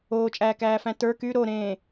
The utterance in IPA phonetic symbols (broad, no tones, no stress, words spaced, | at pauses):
oːt͡ʃʼæːkæːfæ̃ tə˞ ky ɾoɾẽː